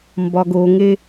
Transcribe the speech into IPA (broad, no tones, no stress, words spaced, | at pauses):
mbɒɡoŋe